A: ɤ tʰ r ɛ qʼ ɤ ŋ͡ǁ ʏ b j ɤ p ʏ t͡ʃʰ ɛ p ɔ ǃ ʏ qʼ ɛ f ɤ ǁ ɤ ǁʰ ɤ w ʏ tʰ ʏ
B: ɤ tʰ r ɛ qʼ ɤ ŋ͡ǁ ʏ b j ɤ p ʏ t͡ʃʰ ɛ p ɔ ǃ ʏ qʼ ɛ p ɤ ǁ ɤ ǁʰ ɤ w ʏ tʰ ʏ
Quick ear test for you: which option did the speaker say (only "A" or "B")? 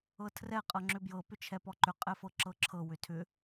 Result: A